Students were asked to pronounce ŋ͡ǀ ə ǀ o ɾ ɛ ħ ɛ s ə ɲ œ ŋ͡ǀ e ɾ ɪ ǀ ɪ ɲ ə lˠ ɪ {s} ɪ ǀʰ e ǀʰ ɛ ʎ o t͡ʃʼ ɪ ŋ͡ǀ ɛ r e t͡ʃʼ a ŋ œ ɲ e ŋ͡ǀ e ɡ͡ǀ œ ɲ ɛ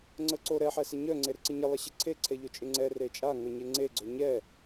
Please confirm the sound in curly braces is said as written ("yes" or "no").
no